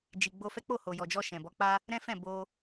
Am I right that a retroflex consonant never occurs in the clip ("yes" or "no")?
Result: yes